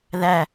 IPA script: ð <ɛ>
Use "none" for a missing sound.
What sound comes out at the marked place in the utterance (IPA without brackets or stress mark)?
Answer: æ